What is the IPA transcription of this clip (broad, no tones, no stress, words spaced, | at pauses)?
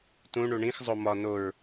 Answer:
tũ ɳuɳĩx zˤomɒ noɹ